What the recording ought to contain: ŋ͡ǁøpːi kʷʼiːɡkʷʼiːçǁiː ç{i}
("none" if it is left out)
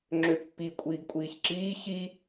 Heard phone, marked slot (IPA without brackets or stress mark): i